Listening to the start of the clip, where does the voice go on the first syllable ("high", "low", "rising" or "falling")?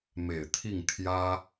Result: low